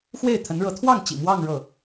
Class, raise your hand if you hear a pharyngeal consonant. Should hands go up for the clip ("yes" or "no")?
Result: no